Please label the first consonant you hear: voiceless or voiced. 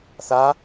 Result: voiceless